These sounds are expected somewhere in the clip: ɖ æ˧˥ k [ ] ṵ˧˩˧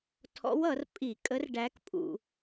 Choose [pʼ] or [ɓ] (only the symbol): pʼ